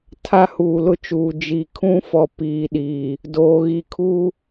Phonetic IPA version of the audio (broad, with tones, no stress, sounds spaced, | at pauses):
tʰ a˦ h uː˨ l ʊ˦ t͡ʃ uː˨ d͡ʒ i˨ kʰ ũ˦ f ɔ˨ p iː˨ ɗ iː˨ | d oː˨ ɣ i˨ kʰ u˦